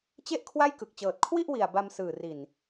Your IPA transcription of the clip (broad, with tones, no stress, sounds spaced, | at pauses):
t͡ɕ e˥˩ ʔ kʰ w a˥˩ j k ɯ˨˩ k̚ t͡ɕ ɤː˨˩ t̚ kʰ w i˥˩ ʔ w i˨˩ a̯ b a˧ m s ɯː˨˩ r i˨˩ n